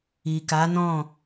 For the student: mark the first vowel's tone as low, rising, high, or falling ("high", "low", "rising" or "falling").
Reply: low